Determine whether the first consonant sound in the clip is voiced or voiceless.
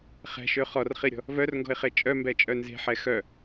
voiceless